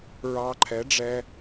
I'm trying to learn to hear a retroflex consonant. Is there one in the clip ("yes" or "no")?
yes